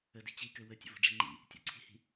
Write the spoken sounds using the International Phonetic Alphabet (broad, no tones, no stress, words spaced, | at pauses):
ədi̤ t͡ɕikø wətʲə̰vo̤ ɖ͡ʐi̤ŋ͡ǃḭ | tʲo̰ǀʰi̤hi̤